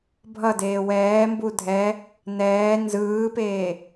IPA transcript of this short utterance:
bʱ ʌ d eː w ɛː m b u dʱ ɛ | n ɛː n z ɯː p eː

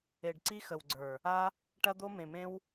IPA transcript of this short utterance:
e˨ ɖ ǀ i˦ x ə˨ w ɡ͡ǀ ə˞˨ | a˦ | ʈ ɐ˦ d̪ o˦ m ẽ˨ m ẽ˦ w

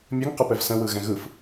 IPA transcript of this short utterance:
mʲ ɘ ŋ q ɘ p ɛ v s ə̃ w ɯ ɣ ɛ̃ ɣ ɯ f

